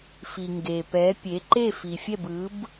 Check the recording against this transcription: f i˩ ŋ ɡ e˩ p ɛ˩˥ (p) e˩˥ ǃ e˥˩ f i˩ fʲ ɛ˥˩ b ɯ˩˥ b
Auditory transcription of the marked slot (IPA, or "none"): pʲ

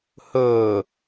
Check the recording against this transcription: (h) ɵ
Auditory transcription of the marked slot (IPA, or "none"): h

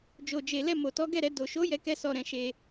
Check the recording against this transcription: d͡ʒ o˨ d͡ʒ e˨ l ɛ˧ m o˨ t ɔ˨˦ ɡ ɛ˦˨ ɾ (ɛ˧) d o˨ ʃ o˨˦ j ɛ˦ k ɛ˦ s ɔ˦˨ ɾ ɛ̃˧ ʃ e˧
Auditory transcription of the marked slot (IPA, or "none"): ɛ˧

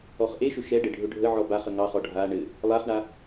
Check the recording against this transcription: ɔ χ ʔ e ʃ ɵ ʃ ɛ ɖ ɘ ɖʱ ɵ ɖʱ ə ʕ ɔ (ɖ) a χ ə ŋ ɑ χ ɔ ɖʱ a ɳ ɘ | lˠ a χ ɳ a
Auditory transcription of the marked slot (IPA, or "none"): b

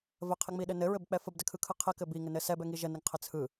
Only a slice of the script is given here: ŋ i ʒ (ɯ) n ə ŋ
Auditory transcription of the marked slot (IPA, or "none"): ə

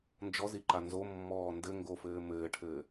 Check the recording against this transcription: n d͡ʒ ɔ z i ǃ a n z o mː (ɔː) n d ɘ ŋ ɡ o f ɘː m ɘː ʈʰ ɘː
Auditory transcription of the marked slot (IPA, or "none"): ɔː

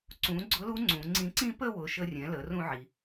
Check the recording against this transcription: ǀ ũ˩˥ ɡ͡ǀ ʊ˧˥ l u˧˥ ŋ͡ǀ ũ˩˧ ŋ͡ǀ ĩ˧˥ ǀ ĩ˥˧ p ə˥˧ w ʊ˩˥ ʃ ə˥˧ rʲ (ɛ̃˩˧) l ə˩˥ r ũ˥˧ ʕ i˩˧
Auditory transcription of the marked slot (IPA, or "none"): ɛ̃˩˥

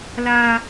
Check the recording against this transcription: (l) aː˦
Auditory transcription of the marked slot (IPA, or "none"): l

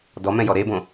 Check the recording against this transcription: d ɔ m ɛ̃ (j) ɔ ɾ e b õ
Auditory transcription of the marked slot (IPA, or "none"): j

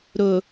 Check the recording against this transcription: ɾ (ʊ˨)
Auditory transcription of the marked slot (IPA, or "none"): ʊ˨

